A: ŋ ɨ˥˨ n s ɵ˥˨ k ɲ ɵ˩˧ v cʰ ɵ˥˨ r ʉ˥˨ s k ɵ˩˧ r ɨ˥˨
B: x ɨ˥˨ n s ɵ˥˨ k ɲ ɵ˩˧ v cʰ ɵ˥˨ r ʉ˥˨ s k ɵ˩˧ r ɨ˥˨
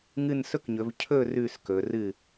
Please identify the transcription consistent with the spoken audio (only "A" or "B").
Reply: A